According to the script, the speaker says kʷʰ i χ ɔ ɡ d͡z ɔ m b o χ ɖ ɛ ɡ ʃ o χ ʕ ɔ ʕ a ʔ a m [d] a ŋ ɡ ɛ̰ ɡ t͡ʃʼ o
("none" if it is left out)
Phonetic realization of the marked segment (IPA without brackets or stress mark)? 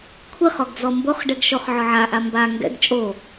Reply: b